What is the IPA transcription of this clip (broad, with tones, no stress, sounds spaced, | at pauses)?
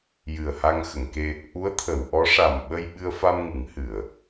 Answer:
j ɨ˨˩ ə̯ h a˧ ŋ x ə˨˩˨ ŋ k e˧ | ʔ u˧˥ ə̯ t̪ʰ ə˨˩˨ w ʔ ɔ˧˥ ʂ a˨˩ m ɓ ə˧ j ɓ ɨ˧ ə̯ f a˧ m ŋ ɨ˨˩˦ ŋ h ɨ˨˩˨ ə̯